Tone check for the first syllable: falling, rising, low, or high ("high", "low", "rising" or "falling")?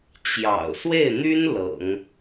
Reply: low